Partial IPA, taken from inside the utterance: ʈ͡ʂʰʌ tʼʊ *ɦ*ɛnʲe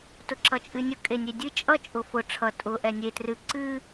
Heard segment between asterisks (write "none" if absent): ʔ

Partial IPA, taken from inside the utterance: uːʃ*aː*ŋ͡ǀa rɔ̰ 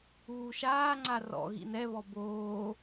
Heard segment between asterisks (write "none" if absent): aː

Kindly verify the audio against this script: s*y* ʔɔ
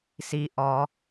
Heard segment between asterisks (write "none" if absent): i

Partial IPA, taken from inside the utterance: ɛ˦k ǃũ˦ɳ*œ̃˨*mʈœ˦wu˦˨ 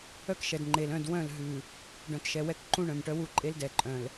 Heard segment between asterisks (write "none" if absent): œ̃˨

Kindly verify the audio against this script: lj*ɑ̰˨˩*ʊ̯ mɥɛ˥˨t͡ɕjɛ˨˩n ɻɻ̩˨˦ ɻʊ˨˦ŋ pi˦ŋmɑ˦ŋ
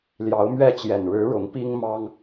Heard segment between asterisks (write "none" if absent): ɑ˨˦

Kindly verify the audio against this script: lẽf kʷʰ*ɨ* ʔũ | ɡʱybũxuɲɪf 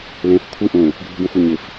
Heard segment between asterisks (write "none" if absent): ɨ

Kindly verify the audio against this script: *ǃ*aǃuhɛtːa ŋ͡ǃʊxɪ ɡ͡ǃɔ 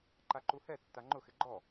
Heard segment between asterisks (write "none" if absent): ǃ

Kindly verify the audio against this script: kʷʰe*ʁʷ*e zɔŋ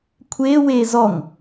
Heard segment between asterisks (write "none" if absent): w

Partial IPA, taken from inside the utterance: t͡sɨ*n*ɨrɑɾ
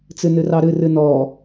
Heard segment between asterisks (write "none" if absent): n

